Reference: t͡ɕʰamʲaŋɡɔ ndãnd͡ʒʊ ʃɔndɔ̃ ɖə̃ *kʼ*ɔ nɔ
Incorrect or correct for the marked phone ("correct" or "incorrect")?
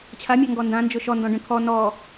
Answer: incorrect